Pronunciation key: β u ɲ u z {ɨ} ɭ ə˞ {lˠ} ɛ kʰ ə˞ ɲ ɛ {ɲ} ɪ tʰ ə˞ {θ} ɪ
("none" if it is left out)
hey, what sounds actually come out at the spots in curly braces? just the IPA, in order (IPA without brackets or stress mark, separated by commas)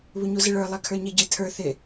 ɪ, lˠ, ɟ, θ